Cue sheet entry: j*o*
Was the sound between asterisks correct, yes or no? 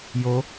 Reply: yes